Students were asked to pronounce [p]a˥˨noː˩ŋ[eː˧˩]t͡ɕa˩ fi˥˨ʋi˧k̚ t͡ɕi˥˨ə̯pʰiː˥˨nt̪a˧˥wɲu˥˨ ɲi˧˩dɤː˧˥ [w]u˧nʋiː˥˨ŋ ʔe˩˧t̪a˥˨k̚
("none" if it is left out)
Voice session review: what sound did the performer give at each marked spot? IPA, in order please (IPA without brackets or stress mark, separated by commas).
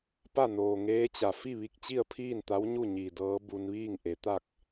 p, eː˧˥, b